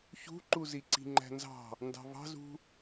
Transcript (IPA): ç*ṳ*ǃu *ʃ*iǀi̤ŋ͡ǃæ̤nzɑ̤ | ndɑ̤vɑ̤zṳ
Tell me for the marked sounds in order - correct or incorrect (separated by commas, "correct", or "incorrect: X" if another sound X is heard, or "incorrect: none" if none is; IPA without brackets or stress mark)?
correct, incorrect: z